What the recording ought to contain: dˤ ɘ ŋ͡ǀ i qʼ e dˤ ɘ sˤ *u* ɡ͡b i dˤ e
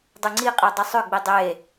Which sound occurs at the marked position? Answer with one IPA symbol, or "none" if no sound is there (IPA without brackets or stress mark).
ʏ